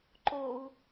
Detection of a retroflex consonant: absent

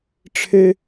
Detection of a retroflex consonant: present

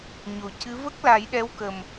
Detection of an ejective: absent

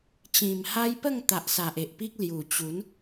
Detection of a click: absent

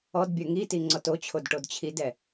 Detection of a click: present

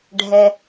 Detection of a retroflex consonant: present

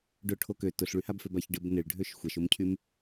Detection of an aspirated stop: present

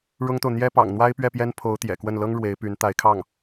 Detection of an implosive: absent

